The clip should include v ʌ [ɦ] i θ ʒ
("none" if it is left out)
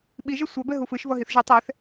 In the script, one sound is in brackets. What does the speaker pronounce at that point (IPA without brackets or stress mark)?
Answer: ɦ